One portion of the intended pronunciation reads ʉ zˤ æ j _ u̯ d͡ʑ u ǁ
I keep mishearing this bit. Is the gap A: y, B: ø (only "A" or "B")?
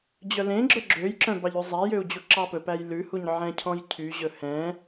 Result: B